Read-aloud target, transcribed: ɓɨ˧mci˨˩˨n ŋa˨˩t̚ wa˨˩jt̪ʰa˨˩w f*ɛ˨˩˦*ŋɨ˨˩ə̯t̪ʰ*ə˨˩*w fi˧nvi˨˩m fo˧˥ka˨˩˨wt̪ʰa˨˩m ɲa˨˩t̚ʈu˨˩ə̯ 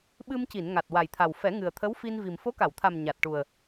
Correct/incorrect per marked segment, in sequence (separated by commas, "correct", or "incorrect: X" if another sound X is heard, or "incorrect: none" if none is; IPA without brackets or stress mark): correct, incorrect: ə˧˥